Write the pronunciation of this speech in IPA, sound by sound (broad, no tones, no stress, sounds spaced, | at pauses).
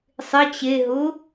sˤ ɪ t͡ɕ e ɦ ʊ